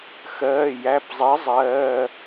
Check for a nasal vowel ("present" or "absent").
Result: absent